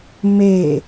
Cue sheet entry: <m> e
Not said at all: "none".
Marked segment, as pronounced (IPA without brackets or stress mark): m